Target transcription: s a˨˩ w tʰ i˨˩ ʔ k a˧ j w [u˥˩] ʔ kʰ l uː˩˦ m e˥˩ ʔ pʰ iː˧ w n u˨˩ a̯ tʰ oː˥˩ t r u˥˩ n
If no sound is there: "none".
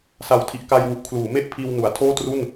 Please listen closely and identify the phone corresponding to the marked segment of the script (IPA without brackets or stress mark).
u˨˩